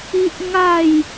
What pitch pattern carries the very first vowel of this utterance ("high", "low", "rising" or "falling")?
high